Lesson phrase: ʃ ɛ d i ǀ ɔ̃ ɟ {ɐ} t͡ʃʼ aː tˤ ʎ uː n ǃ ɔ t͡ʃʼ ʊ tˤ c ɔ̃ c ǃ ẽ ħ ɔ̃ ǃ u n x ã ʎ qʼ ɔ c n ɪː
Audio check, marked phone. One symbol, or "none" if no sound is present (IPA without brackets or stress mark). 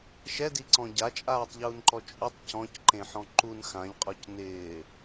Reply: a